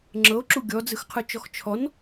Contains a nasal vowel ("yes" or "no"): no